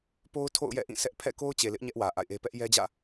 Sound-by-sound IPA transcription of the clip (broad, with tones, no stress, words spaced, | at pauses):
po˦ʊ̯ tʰo̰˦˨ʊ̯jɛ̰˦˨ʔĩ˦˨ sʰɛ˦ʔ pʰɛ̰˦˨ko˦ʊ̯ t͡ɕe˨lɪ˦ʔ ɲɛ˦ʔwä˨ ʔa̰˦˨ɪ̯ʔe˦ pɛ˦ʔjɛ˦d͡ʑä̰˦˨